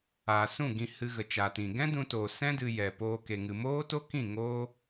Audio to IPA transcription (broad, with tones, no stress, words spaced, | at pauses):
aː˨ sũ˦˨ɡĩ˧ hɨ˧ɣə˨t͡ʃaː˨tĩ˨ ɡɛ̃˦dũ˧toː˨ sɛ̃˦dɨ˧ jɛ˨poː˧ ke˨ŋɨ˨ moː˦to˦kĩ˦˨ ŋoː˦